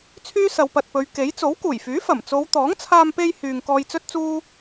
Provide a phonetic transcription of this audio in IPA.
t͡sʰ yː˥ s ɐ˨˧ w p ɐ˨ t̚ p ɵ˨˧ ɥ k e˨˥ j t͡s o˨˥ w k uː˨˩ j f yː˨˥ f ɐ˨˩ m t͡s o˨˧ w t̪ ɔː˨˥ ŋ t͡sʰ aː˧ m p e˧ j h yː˨ ŋ k ɔː˧ j t͡s ɵ˥ t̚ t͡s uː˥

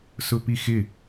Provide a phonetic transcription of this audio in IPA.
s ʊ p i x ɪ

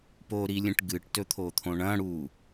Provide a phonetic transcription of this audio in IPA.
p o ɾ i lʲ ẽ ʈ ɡ ɨ ʈ t ɵ t̪ʰ o t̪ʰ õ ɳ ɐ̃ ɽ u

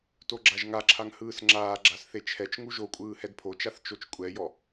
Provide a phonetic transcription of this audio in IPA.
t o ɡ͡ǁ a ʒ ŋ a ǁʰ a ŋ h ɯː s ŋ͡ǁ aː ɡ͡ǁ a s θ e t͡ʃʰ ɛ t͡ʃ ŋ u ʒ o kʷʼ ɯː h ɛ d pʰ o t͡ʃ a θ t͡ʃ o t͡ʃ kʷʼ ɛ j ɔ

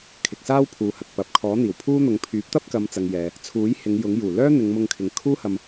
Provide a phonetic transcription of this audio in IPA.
kʰ ɪ˨ k̚ s aː˥ w pʰ uː˨ h ɐ˨ k̚ p ɐ˨ p̚ kʰ ɔː˨˥ n̪ iː˨˩ w pʰ uː˥ n̪ ʊ˨˧ ŋ pʰ yː˨˥ p̚ t̪ ɐ˥ p̚ k ɐ˨˧ m t͡s ɐ˨ ŋ j ɛː˨ | t͡sʰ uː˨˥ j h ɪ˨˧ ŋ j ʊ˨˥ ŋ j uː˨˩ l œː˥ n̪ ɪ˨˧ ŋ m ʊ˧ ŋ kʰ ɪ˨ ŋ kʰ uː˥ h ɐ˧ m

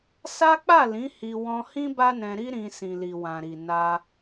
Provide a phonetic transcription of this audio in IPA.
s a˦ k͡p a˦˨ l ĩ˨˦ h i˧ w ɔ̃˧ h ĩ˦ b a˦ n ɛ̃˧ ɾ i˦ ɾ ĩ˧ s ĩ˨ l i˨ w ã˨ ɾ i˨ n a˧

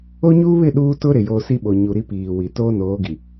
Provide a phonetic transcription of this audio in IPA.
o˦ ɲ uː˦ β ɪ˦˨ ɗ uː˦ t ʊ˦ ɾ ɪ˨ j o˦ s i˦ ɓ o˨ ɲ u˨ ɾ i˦ p iː˨ w i˨ t oː˦ n oː˨˦ ɡ i˨

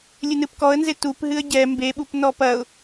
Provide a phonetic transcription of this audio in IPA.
lʲ ɨ n ɨ p k ɔ ə̯ n z e t u p ɦ ɨ ə̯ ɟ ɛ m b e ɓ u p n ɔ p ɐ ʊ̯

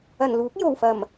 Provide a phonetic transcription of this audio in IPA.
ɐ˨˩ n l uː˨˥ k̚ j o˨˩ w f ɐ˨˩ m

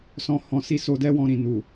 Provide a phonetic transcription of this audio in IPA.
s ɔ̃˧ h ɔ̃˧ s i˦ s o˧ d ɛ˦ w ɔ̃˧ ɾ ĩ˨ n u˨

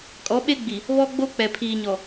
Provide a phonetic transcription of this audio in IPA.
kʼ ɔ˨˦ ɓ e˦ ɡ͡b i˨ | β ɔ˦ ɡ͡b o˦ k͡p ɛ˨ pʰ iː˨ ɲ ɔ˨

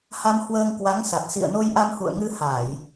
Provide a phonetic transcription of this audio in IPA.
h a˧ m h w əː˧ ŋ k w a˨˦ ŋ s a˨˩ t̚ s ḭ˧˨ ə̯ n o˧ j ʔ a˧ m h ṵ˧˨ ə̯ ŋ ɨ˧ h a˧˩˨ j

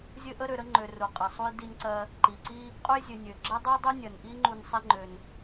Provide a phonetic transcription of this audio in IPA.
zʲ ɘ˦ ʔ ə˦ ɾ ø˨ ɾ ə˦ ŋ͡ǃ ø˨ r u˩ qʼ ɘ˩ sˤ u˨ j d i˨ n ǀ ɜ˨ | ǃ i˩ ǀ i˦ | qʼ u˦ j zʲ ø˨ nʲ ø˩ ɡ͡ǁ ə˥ dˤ u˥ dˤ u˥ nʲ ɜ˩ n ʔ i˥ ŋ͡ǃ u˨ n sˤ i˨ ŋ͡ǃ ø˩ n

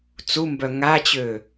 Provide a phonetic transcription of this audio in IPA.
t͡s u m b œ ŋ a t͡ɕ ø

